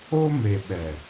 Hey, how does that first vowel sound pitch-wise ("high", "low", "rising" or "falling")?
high